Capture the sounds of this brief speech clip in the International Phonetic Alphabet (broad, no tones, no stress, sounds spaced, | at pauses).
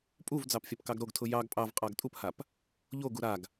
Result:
pʼ u v d͡z ɑ p fʲ a p k ɑ ɡ ɾ o ɡ tʰ ʊ j ɑ ɡ pʼ ɑ v qʼ ɑ ɡ tʼ u p h a p | ʎ o ɡ u ɾ a ɡ